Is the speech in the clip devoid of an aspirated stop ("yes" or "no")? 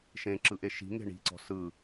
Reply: yes